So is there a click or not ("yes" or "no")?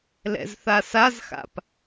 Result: no